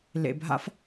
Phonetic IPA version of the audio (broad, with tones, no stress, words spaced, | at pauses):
lḛ˨bʱa̰˦f